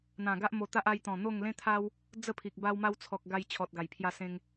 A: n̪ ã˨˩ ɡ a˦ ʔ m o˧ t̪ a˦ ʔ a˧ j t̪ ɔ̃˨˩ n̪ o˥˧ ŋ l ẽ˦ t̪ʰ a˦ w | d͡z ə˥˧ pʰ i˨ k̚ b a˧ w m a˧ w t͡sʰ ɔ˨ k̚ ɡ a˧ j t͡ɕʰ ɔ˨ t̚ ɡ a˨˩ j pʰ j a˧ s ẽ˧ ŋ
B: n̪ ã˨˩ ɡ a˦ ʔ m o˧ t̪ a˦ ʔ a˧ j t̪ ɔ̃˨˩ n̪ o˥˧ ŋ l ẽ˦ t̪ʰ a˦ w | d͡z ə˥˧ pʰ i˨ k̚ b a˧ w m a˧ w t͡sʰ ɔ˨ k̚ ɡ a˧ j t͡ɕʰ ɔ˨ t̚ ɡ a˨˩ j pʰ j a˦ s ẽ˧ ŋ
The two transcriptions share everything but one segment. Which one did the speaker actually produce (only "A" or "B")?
A